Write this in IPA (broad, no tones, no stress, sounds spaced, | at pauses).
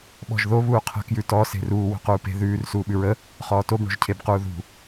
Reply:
ɓ ɔ̤ ʒ ð o β uː qʰ ə̤ k j ʉ t ɔ s e̤ r uː w o̤ q uː p e̤ ð ʉː r s uː ɓ ʉ ɹ ə | χ ɔː t o b ɳ o̤ ʒ cʰ e b q uː ð ṳ